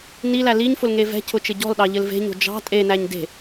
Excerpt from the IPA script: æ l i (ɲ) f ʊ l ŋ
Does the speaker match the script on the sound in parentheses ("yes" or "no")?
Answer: yes